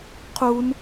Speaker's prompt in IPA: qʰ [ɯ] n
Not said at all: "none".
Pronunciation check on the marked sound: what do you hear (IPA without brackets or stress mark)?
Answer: u